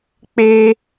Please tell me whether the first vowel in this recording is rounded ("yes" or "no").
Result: no